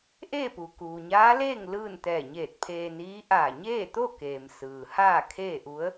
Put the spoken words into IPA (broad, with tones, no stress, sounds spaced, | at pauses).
ʔ eː˥˨ p u˩ k uː˩ ɲ aː˧˥ l eː˥˨ ŋ l ɯː˥˨ n t̪ ɛː˧˩ ɲ eː˧˩ t̚ pʰ eː˧ n iː˧˥ ʔ aː˧˩ ɲ eː˥˨ t̪ o˥˨ k eː˩ m s ɯː˩ h aː˥˨ kʰ eː˥˨ ʔ u˧˥ ə̯